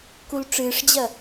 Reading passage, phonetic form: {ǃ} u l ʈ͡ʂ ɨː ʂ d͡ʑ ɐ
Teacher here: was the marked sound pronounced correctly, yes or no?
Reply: no